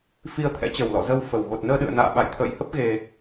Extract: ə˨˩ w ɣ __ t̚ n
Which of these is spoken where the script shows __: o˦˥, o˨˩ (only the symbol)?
o˨˩